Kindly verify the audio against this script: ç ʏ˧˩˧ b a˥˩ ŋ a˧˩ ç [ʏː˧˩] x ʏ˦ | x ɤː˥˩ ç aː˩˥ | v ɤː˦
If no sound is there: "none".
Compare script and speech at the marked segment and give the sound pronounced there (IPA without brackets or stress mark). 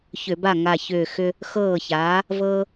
ʏː˧˩